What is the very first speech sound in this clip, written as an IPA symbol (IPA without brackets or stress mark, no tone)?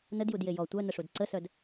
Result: n